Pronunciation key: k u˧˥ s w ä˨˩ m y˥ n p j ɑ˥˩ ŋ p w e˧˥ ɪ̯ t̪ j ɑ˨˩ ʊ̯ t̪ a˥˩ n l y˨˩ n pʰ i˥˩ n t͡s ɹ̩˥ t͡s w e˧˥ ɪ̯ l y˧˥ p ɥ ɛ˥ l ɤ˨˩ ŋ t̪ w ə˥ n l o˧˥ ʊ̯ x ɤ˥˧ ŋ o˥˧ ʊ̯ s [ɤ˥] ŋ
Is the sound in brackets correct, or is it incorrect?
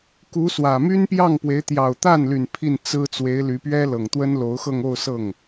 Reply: incorrect